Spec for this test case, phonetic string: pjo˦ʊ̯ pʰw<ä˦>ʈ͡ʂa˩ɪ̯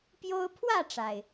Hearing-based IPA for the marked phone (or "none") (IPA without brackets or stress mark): ä˥˨